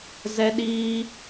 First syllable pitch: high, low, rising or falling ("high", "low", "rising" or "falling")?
high